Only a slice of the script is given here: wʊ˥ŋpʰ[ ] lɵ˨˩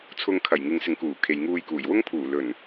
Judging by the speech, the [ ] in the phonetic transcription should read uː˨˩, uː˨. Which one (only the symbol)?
uː˨˩